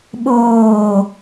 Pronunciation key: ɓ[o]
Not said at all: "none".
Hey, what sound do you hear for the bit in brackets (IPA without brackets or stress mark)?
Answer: oː